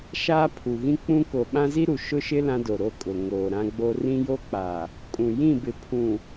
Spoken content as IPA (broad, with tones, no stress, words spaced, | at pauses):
ʃaː˦pʰu˨ɣĩ˦ k͡pũ˦ ko˨ɓã˦zi˦ɾu˨ ʃʊ˦ʃɪ˦ lã˦do˨ɾo˦kʼʊ˨ ŋoː˨ɾã˦ɡ͡bo˦ rĩ˦jo˦k͡pa˨ | kʼũ˨jĩ˦˨bɪ˨ pʰũ˨